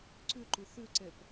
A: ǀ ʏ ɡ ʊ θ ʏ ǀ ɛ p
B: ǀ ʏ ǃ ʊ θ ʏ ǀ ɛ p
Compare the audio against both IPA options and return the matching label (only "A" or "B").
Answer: B